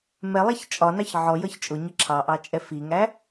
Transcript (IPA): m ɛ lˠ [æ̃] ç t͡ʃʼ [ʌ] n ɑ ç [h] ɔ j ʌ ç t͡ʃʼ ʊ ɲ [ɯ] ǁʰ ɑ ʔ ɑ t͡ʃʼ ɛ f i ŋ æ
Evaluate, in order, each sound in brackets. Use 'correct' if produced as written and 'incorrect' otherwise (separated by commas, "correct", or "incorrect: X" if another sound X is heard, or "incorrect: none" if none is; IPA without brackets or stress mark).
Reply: incorrect: æ, incorrect: ɒ, incorrect: ʕ, incorrect: ə